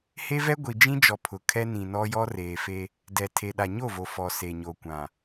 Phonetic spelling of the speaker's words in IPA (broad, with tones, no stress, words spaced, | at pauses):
he˦vɛ˦ ɡʷi˨d͡ʒĩ˦d͡ʒɔ˨ pʰʊ˨kʰɛ˦ nĩ˨ nɔ˦jɔ˦ reː˨fe˦ | dɛ˨tʰe˨ɗa˨ ɲo˦˨vo˨ fɔ˨ se˨ɲo˨kʷã˨